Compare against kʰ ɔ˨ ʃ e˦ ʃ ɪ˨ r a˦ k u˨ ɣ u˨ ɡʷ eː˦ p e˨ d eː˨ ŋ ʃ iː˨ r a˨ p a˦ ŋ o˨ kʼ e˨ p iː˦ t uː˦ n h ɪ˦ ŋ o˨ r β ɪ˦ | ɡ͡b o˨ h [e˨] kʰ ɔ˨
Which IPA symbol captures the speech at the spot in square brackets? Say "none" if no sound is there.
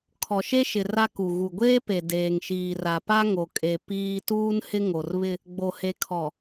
e˨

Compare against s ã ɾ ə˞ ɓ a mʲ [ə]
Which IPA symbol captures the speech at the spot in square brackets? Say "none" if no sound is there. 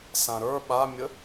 ə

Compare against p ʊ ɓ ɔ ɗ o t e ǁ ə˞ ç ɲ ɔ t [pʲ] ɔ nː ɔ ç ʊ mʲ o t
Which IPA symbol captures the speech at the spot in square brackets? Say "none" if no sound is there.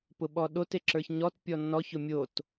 pʲ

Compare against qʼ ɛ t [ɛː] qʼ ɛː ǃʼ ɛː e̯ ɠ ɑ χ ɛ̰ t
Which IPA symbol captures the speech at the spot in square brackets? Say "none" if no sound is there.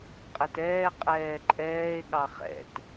ɛː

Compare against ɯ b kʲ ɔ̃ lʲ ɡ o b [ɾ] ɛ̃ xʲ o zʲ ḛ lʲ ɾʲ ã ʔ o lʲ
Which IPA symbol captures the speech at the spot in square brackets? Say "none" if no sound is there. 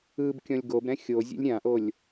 ɾ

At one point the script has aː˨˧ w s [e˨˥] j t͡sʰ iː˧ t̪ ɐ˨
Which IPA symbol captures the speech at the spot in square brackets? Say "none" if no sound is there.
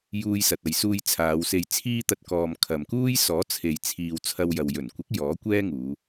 e˨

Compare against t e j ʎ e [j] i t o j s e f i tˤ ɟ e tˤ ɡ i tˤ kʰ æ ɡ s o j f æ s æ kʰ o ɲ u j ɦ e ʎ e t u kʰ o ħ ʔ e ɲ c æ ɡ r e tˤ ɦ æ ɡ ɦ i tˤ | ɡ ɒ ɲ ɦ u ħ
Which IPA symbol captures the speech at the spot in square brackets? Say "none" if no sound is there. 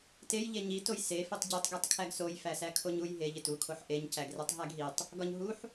ɲ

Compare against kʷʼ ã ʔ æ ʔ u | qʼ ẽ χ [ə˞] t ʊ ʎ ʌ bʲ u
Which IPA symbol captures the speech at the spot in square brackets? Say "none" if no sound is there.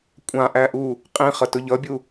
ʌ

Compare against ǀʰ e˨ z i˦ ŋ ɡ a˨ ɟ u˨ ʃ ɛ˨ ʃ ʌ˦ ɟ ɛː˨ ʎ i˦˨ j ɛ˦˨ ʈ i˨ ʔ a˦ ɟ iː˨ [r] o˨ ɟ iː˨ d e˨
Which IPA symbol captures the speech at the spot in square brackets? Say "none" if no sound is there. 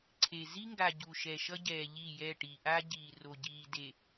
r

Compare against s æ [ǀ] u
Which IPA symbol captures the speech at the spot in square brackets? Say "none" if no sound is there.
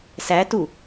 t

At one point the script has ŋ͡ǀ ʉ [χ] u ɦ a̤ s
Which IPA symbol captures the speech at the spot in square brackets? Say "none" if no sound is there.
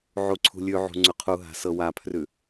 qʰ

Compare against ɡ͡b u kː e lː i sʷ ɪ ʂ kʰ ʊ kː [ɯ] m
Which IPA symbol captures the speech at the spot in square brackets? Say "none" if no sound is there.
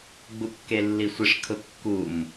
u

